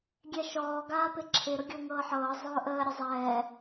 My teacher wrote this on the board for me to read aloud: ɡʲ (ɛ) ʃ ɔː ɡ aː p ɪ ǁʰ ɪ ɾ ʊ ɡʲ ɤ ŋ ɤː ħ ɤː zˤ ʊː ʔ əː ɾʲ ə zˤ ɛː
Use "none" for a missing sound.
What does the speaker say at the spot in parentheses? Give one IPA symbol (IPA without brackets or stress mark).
ɛ